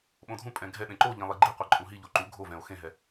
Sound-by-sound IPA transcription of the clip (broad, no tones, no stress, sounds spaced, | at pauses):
ɓ õ dʱ ũ pʼ ɛ̃ ɡʱ ɛ ɗ ẽ ǃ o ʎ ẽ lˠ i ɡ͡ǃ i qʷ ɛ ǃʼ ũ ɦ i ʎ o ǃ u ɡʱ o v ɛ̃ o̯ x ẽ ɦ ɛ